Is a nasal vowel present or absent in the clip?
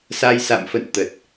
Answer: absent